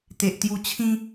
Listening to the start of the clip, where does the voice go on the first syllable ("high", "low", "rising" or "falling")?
low